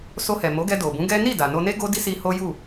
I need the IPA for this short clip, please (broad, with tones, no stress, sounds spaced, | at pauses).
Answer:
s o˧ h ɛ˨ m o˨˦ ɡ ɛ˧ d o˨ b ũ˨˦ ɡ ɛ˦ n i˦˨ d a˨ n o˧ n e˦ ɡ o˦ d i˦ s i˧ h o˦ j u˦˨